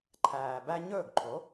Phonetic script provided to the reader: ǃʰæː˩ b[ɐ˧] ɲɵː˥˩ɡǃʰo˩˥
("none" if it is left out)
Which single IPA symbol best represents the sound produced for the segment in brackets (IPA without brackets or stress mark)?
æ˧